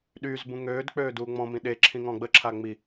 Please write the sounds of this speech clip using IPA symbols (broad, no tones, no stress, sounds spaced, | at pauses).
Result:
ɗ y z b ũ ŋ øː d k͡p øː d uː ŋ͡m ɔ̃ m ĩ ɗ e ǁʰ ĩ ŋ ɔ̃ ɡ͡b ə ǁʰ a ŋ͡m i